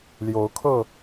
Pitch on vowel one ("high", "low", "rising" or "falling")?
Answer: rising